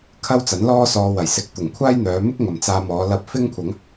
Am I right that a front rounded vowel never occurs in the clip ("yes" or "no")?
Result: no